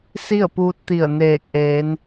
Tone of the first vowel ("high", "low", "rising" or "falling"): falling